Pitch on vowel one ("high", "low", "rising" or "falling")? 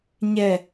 low